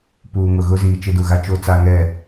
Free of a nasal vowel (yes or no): yes